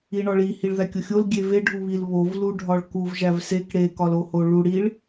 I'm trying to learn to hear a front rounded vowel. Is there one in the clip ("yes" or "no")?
no